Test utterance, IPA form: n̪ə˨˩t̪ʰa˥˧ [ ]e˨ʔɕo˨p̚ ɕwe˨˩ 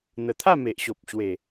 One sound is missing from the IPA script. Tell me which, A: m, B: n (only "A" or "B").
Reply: A